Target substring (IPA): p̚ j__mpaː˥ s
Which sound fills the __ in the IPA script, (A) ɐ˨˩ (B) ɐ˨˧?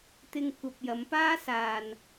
B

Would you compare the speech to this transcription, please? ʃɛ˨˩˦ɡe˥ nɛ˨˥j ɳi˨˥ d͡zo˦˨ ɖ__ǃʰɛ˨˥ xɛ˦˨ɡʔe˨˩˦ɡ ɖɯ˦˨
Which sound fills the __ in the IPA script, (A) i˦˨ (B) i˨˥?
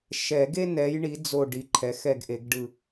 B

